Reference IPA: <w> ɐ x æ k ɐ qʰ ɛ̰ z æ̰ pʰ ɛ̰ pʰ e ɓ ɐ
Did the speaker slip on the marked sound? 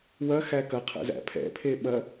no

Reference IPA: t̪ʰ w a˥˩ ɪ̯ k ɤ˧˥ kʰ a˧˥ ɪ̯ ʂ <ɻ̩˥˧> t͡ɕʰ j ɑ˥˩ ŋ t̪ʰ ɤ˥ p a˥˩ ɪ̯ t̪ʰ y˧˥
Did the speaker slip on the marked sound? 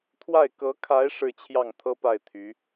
no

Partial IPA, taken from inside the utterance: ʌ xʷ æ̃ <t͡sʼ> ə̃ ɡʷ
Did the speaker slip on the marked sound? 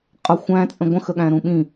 no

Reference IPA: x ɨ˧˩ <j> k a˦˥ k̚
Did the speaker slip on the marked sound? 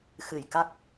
no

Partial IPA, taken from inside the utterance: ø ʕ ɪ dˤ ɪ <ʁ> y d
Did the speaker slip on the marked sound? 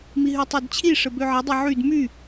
yes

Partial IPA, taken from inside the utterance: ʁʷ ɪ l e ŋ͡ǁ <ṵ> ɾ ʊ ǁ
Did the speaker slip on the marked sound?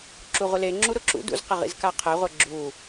yes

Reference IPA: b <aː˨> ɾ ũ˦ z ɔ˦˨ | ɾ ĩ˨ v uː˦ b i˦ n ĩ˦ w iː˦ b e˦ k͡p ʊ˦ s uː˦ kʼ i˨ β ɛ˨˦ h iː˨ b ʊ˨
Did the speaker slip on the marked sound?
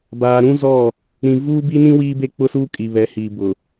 no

